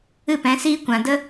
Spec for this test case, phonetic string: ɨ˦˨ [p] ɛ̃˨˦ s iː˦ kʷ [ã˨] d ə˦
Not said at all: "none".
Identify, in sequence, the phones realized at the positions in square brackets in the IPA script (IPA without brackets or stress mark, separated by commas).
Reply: p, ã˨